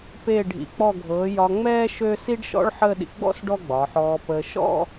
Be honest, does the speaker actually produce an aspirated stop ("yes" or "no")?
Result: no